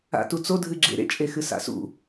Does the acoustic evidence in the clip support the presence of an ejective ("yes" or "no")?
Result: yes